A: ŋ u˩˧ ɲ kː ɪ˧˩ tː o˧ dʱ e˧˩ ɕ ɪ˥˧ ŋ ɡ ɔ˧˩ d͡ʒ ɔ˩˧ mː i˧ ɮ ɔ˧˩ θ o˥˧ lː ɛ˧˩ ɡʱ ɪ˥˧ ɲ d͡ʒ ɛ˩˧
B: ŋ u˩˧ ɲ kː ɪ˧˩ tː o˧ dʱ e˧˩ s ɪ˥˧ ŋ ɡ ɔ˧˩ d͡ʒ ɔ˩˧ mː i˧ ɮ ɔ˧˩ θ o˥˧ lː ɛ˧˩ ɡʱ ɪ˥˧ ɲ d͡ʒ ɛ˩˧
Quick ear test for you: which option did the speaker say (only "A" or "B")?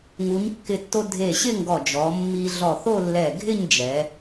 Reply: A